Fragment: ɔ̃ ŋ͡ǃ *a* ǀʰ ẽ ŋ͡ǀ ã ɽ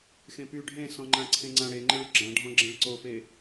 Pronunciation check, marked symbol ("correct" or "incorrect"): incorrect